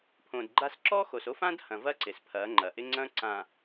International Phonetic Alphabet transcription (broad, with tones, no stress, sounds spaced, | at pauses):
pʰ õ˨ d ɡ͡ǃ a˦ s ǁ ɔ˦ x o˨ s o˦ f ã˦ d h ɐ̃˨ v ɐ˦ ǀ ɪ˨ s pʰ ɐ˨˦ ŋ͡ǃ ɐ˨ ʔ ɪ˦ ŋ͡ǀ ɐ̃˦ ǀ ã˨